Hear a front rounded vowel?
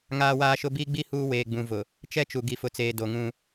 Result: no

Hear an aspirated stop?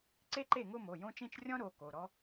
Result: no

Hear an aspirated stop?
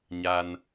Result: no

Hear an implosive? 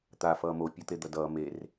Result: no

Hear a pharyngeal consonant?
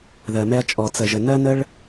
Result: no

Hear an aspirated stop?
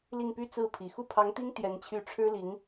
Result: yes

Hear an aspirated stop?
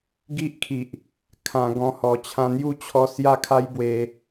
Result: yes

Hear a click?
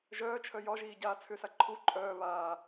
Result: yes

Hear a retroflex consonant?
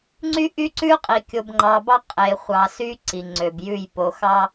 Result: no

